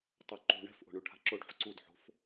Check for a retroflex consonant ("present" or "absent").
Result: present